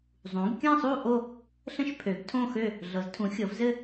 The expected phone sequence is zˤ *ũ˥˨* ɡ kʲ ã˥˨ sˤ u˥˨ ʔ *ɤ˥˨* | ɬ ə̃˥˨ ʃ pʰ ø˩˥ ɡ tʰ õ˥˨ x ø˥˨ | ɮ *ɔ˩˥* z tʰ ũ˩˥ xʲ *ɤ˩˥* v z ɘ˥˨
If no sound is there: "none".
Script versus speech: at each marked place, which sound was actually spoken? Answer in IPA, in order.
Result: ũ˩˥, o˥˨, ɤ˩˥, ɤ˩˥

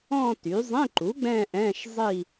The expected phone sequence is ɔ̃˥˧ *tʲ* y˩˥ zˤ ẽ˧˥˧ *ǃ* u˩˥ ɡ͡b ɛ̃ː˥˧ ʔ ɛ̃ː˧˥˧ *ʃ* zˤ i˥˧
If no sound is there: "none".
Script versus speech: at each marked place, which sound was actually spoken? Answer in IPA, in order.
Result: t, ǃ, ʃ

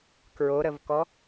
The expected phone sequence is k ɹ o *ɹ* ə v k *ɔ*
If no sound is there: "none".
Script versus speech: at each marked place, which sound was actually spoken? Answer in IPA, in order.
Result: ɾ, ɔ

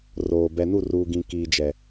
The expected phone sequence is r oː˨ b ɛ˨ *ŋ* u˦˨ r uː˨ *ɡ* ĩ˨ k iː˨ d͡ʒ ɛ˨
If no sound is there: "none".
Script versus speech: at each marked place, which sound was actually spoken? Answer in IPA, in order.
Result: n, ɡ

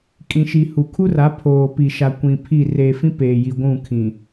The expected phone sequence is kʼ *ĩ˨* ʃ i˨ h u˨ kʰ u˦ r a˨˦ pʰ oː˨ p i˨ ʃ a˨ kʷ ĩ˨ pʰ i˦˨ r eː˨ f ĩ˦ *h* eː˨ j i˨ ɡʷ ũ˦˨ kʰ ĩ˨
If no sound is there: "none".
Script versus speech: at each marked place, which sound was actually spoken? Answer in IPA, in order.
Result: ĩ˨, p

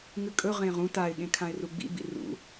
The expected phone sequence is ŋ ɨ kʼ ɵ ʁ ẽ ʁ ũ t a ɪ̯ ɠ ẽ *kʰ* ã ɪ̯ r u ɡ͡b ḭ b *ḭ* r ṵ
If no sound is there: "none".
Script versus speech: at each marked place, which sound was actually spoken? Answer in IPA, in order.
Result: kʰ, ḭ

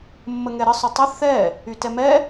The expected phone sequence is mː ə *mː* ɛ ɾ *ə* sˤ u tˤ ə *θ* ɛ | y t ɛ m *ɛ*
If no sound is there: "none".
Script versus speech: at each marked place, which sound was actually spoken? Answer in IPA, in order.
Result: ŋ, ə, θ, ɛ

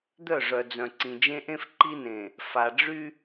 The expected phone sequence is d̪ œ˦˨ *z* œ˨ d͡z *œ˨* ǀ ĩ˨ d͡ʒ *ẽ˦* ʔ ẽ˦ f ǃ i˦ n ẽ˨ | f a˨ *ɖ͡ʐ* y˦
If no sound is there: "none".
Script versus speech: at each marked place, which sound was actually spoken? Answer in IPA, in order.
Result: ʐ, œ̃˨, ẽ˦, ɖ͡ʐ

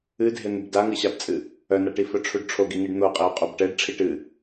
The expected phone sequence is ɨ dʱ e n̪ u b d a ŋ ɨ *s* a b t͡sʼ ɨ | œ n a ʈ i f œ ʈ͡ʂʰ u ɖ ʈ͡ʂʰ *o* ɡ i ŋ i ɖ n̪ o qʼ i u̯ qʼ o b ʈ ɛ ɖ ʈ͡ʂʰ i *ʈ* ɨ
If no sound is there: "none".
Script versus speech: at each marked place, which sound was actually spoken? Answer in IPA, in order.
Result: ɕ, o, ʈ

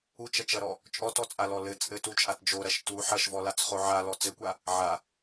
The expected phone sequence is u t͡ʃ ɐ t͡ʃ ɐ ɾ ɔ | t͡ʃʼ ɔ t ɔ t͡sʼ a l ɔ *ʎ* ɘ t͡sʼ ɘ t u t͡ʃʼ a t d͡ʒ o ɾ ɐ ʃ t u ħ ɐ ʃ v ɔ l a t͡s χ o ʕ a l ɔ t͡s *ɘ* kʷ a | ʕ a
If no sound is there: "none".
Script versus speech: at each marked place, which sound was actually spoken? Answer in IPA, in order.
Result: l, ɘ

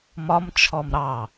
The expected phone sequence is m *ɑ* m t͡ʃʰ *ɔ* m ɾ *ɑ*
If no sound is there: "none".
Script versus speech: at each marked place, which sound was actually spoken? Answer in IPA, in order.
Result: ɒ, ɔ, ɑ

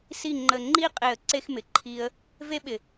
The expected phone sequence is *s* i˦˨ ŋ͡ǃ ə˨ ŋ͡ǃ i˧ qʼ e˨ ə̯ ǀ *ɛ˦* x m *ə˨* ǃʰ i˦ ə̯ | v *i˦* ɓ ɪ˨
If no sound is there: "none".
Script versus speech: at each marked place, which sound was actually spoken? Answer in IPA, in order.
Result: s, e˦, ɪ˨, e˦

